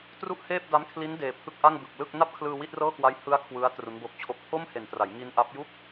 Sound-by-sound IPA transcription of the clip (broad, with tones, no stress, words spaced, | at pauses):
tru˥˩ʔheː˥˩p̚ da˦˥mkʰli˦˥n deː˨˩pʰɯ˦˥k̚ʔa˥˩ŋbɯ˨˩k̚ lɯ˥˩k̚ na˥˩p̚kʰlɯː˧ wi˥˩t̚rɤː˥˩kwa˦˥j hɯ˦˥a̯ kʰwɯ˦˥a̯ tru˦˥nbo˦˥k̚t͡ɕʰo˥˩k̚ pʰo˥˩mhe˨˩ntra˩˦jŋi˧n ʔa˦˥p̚ ju˥˩k̚